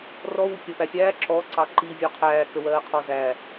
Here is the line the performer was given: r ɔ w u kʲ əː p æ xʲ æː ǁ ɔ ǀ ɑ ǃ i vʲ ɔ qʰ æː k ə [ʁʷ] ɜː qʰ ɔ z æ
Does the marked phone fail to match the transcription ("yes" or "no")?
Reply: yes